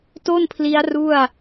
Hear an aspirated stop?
yes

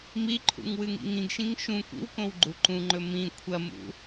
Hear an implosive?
no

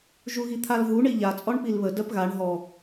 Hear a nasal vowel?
no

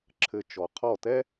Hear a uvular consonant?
yes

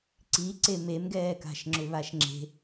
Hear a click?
yes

